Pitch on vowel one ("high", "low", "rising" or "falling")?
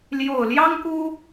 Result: low